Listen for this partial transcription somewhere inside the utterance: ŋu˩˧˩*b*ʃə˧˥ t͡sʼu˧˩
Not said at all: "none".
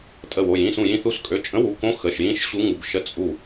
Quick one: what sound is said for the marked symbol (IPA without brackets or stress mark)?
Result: b